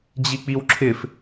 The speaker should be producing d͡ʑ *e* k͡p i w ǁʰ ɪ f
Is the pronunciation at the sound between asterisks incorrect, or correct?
incorrect: i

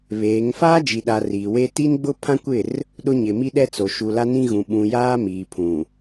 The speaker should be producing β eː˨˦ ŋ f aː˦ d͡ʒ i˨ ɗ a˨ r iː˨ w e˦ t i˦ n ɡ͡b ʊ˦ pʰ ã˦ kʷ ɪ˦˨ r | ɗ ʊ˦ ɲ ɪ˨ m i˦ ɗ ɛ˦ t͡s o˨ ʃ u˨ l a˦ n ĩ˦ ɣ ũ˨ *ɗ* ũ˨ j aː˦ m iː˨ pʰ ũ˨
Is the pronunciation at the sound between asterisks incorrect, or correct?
incorrect: ɓ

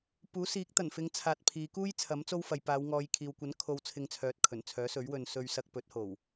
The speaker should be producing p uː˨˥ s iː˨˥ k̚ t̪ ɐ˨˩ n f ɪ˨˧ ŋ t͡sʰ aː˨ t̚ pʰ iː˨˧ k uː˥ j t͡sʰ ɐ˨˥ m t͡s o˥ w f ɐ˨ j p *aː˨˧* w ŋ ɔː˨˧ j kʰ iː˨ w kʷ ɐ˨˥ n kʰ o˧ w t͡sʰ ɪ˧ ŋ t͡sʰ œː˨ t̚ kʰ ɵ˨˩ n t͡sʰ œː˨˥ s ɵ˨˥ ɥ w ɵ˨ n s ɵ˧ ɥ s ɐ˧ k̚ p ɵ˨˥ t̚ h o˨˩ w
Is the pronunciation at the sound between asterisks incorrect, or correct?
correct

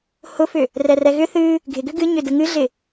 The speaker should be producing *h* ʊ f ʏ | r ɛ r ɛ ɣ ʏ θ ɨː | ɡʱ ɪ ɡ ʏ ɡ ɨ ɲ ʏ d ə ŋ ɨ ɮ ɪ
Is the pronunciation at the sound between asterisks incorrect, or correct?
correct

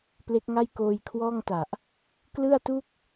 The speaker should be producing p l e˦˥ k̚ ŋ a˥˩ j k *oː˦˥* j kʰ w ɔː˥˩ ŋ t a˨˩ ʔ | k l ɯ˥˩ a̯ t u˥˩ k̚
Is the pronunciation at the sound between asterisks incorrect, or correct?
incorrect: oː˧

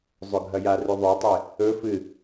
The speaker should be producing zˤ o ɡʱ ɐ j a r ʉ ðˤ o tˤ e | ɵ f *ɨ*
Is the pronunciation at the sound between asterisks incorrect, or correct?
correct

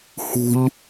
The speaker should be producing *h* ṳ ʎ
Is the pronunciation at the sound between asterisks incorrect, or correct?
correct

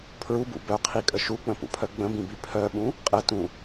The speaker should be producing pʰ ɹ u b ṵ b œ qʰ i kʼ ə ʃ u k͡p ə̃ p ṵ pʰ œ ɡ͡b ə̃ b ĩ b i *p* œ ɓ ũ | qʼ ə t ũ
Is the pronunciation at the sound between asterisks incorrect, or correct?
incorrect: pʰ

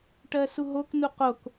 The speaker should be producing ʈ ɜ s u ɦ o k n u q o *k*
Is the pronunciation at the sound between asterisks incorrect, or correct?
correct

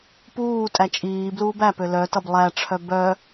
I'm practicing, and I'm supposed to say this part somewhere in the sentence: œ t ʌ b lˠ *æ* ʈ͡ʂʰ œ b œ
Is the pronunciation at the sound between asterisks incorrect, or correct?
correct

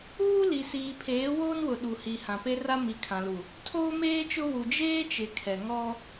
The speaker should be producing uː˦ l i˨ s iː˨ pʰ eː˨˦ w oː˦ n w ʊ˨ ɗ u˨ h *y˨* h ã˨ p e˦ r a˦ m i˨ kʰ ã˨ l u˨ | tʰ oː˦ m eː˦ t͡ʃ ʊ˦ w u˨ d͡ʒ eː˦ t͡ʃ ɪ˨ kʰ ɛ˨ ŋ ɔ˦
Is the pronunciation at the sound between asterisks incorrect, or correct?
incorrect: i˨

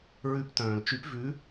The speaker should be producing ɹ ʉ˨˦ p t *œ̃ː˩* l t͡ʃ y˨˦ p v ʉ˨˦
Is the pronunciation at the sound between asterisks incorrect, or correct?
correct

